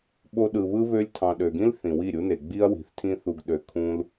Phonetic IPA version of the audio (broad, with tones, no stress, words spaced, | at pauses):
ɓo˧ɗɯ˨βɯ˦ βø˧lʲtʰɑ̃˨ɗø˨ɡĩ˦l θĩ˨wi˦˨ɾʲu˦ne˨ ɡ͡bi˦ɐ̯wi̤˨θtʰĩ˦θu˧ɡ ɗø˧kʰũ˦l